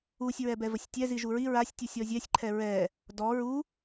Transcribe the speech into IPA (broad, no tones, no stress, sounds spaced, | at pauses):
u sʲ ɹ ɛ b ɛ v ə sʲ tʲ ɛ z i ʒ u ɹ i ɹ a sʲ tʲ u sʲ ɔ zʲ ɛ sʲ ǃʰ ɛ ɹ ɛ | d ɔ ɹ u